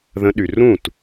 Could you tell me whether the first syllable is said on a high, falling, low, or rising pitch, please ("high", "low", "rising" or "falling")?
rising